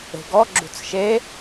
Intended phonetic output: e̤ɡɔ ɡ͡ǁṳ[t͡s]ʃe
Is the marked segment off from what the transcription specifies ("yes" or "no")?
no